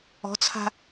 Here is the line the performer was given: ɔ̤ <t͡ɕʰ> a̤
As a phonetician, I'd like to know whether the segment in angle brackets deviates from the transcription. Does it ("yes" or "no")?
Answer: yes